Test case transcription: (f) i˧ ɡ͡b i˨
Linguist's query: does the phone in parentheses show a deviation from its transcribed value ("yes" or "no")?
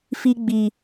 no